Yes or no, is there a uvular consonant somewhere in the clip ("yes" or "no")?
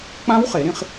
yes